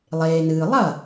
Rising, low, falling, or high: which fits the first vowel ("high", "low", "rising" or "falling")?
low